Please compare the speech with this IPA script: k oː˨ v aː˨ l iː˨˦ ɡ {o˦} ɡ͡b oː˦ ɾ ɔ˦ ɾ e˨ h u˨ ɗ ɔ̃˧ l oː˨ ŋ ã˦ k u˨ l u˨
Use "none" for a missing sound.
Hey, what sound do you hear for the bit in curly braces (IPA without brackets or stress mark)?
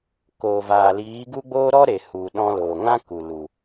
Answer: u˦